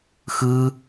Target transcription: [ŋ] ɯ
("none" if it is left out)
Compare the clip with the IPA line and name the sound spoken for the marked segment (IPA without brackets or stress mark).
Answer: x